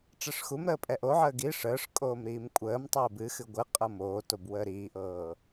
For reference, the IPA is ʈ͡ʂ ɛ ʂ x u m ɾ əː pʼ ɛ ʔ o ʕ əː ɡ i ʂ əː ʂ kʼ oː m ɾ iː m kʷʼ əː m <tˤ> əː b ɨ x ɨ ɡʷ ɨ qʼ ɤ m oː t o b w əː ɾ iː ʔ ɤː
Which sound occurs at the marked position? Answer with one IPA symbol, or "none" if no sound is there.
tˤ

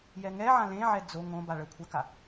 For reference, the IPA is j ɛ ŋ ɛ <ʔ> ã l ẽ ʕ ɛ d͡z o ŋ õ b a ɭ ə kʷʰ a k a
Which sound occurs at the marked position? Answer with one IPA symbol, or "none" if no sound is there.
ʕ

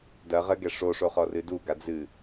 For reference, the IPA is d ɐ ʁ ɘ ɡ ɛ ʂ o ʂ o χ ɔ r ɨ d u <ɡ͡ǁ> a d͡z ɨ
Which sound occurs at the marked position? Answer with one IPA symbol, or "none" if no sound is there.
ɡ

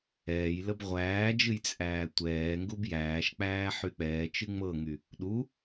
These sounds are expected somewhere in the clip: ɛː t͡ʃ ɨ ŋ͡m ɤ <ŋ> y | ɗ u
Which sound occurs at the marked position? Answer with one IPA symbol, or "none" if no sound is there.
ŋ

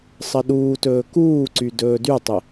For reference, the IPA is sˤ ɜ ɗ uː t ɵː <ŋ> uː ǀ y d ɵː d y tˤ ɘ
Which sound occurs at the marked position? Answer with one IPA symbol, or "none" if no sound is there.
k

